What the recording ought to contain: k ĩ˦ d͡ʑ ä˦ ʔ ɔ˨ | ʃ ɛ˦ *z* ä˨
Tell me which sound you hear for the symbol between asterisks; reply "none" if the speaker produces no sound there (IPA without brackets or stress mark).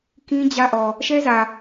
z